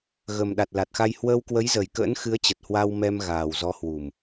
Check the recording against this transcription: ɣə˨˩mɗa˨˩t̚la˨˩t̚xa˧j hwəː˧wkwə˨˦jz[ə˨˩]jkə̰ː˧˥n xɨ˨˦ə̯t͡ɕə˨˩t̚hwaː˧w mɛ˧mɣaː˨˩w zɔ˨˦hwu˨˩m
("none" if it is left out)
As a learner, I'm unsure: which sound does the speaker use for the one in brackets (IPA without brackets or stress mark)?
ə˨˩